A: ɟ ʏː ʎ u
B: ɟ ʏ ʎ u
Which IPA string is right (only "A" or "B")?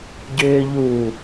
A